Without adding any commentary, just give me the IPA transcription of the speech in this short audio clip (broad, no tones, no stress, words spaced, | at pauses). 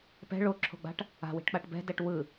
pɛ̤ ɭoǁʰo̤ɡ͡ba̤ʈ | a̤wi̤ʈk͡paʈ bɛ̤dɛʈ wɯ